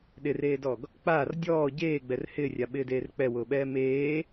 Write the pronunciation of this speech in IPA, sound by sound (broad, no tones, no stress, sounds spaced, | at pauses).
ɗ ɪ r eː d ɔ ɡ | k͡p aː r dʲ ɔː ɟ eː ɡ͡b ɛ r h ɪː rʲ a ɓ ɪː d eː r k͡p ɛ w ʊː ɓ ɛː m eː